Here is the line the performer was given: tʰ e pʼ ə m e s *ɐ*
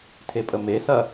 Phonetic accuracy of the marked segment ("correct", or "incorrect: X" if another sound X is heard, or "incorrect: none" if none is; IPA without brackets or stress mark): correct